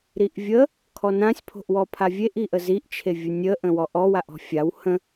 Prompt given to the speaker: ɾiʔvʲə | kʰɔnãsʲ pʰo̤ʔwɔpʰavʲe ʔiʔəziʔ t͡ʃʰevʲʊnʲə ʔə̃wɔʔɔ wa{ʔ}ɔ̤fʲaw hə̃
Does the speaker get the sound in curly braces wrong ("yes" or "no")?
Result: no